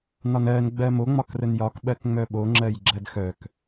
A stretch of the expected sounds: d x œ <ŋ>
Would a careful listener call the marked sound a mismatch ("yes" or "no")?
yes